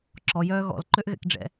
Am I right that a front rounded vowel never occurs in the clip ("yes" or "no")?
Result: no